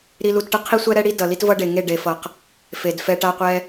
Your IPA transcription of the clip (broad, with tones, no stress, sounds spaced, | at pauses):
ɾ i˧ l u˧ t ʈ ɯ˧ qʰ i˦ sʷ ɛ˦ ɾ ɛ˦ ɽ i˦ d ʌ˨ l i˦ t v ʌ˦ ɖ e˨ ŋ e˦˨ ɖ e˨ f ʌ˨ q | f e˨ d f ɛ˧ ʈ a˦ qʷ ɛ˦